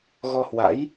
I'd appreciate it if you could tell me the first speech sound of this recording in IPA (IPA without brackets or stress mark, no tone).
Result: ɣ